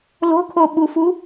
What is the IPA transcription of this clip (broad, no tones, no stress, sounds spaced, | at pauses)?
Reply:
l o̤ kʰ o ɓ u f u